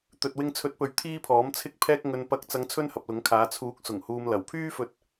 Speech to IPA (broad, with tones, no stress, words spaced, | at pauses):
t̪ɵ˨t̚wɪ˧ŋt͡sʰɵ˨˥t̚pɵ˨ɥ t̪ʰiː˥pʰɔː˨˥mt͡sʰɪ˥k̚ pʰɛː˧k̚ ŋɵ˨n pɐ˨˥k̚t͡sɐ˨˧ŋ t͡sʰɵ˥nhɐ˨p̚lʊ˨˥ŋkʰaː˨˧ t͡sʰuː˨˥k̚ sʊ˨˩ŋhuː˨m lɐ˨˩wpʰyː˥fɵ˧t̚